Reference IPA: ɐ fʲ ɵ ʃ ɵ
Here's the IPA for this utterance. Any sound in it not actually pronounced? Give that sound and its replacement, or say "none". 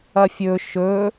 none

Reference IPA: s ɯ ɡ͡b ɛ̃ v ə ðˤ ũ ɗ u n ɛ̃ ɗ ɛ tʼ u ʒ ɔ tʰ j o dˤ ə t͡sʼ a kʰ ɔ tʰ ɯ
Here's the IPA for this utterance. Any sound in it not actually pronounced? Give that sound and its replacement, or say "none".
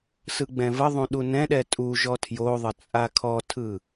dˤ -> ðˤ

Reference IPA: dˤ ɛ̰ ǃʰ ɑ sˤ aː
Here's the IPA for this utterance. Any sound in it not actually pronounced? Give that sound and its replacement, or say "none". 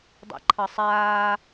none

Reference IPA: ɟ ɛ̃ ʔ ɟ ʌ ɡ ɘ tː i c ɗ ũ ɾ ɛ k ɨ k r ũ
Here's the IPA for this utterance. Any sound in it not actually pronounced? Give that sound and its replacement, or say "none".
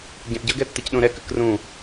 ɘ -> ɛ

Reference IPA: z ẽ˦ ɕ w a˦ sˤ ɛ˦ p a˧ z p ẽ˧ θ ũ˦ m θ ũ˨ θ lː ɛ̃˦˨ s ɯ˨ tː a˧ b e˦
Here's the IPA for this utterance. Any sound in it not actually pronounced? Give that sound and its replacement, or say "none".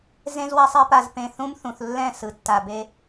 ɕ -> z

